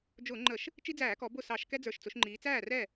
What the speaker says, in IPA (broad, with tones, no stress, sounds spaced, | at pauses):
d͡ʒ ʊː˧˩˧ ŋ͡ǃ ə˧˩˧ ʃ | t͡ʃ i˦ d͡z æː˧˩˧ k ɔ˩˧ b ʊ˥˩ s ɑ˧˩˧ ʃ k ɛ˦ d͡z ə˞˨˩ ʃ t͡s ʊ˩˧ ʃ ŋ͡ǃ iː˩˧ t͡s æː˥˩ r ɛ˥˩